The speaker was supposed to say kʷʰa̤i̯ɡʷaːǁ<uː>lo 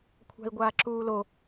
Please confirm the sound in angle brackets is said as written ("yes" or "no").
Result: yes